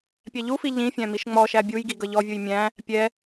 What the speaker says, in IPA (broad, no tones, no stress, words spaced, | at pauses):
pʲæʎufi ʎĩfʲæ̃ miʃŋ͡mɔʃæ bʲujɡi ɡʌʎɔvʲuj mʲæ̃ | pʲɛ